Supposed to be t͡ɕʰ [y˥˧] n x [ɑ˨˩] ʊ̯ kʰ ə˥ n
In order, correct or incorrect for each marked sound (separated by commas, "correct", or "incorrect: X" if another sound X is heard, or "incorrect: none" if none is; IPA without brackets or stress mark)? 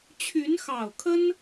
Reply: incorrect: y˧˥, correct